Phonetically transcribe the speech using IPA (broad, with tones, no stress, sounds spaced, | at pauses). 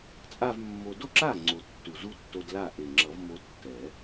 t͡sʼ a˥˧ v mː o˧ d o˥˧ ǁ a˥˩ ŋ͡ǀ o˨˩ tː u˨˩ z u˦˥ tː o˧ d l a˥˩ ʔ e˨˩ ŋ͡ǁ ʌ˨˩˦ v m o˧ tː ɛ˨˩˦